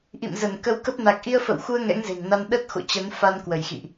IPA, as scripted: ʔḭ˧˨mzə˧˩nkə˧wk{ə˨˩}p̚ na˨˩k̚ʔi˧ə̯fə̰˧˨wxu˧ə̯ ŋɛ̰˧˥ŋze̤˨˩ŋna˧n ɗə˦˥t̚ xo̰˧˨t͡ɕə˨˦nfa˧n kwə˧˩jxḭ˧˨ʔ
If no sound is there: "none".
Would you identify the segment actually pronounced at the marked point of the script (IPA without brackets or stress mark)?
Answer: ə˦˥